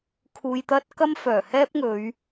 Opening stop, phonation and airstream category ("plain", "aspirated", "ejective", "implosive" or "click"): aspirated